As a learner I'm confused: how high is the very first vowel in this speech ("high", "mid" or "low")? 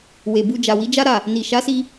mid